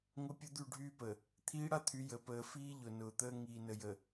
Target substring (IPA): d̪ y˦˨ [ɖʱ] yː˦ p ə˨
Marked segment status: correct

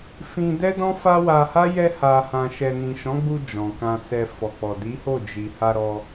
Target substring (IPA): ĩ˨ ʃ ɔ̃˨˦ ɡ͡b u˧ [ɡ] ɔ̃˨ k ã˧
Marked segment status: incorrect: d͡ʒ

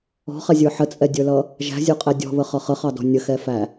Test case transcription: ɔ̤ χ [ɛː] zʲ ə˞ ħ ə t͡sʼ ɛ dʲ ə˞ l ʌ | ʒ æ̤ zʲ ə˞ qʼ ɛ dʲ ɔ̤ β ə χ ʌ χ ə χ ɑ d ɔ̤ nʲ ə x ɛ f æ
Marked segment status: incorrect: ɛ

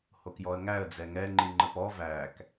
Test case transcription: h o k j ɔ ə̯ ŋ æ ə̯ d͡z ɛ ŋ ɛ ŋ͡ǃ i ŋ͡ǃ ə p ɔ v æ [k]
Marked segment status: correct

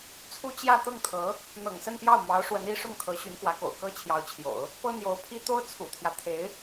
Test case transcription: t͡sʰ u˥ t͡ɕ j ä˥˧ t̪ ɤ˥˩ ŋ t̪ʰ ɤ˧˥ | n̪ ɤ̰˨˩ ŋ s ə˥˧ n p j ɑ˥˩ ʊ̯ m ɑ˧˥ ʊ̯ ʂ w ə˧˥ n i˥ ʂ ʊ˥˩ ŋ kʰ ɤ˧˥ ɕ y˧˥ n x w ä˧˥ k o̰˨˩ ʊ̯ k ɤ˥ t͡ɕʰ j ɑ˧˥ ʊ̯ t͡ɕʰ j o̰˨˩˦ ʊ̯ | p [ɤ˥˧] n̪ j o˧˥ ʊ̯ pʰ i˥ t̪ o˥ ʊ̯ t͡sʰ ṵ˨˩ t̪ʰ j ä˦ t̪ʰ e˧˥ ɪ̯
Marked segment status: incorrect: ɤ˥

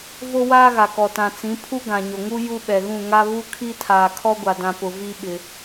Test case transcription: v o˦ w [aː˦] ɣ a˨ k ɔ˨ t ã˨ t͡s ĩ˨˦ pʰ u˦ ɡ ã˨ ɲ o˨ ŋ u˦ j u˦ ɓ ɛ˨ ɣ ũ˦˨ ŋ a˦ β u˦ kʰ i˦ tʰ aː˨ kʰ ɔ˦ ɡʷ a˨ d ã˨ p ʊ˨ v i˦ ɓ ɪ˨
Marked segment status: correct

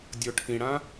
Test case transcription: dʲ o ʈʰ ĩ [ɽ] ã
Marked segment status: correct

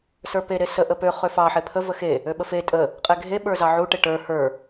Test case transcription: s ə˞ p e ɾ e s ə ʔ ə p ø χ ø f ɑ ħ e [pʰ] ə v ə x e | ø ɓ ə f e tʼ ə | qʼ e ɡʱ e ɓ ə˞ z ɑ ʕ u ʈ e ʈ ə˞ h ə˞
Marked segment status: correct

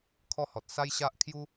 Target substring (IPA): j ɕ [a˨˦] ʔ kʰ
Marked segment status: incorrect: a˦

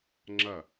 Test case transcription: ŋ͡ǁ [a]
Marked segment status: incorrect: ɐ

